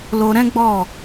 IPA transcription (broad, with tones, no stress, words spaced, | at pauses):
lo˧ɾɛ̃˦ɡ͡bɔ˦˨